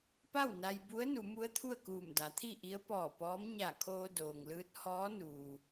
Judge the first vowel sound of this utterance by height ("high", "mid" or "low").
low